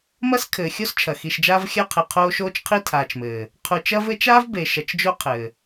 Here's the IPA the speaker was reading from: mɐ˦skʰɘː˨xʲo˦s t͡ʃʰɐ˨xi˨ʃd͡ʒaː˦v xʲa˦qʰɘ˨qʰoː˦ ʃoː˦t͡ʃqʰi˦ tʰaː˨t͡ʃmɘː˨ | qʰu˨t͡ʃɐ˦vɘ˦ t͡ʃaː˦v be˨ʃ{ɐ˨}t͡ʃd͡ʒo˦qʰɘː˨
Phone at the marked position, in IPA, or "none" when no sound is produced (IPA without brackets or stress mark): ɐ˨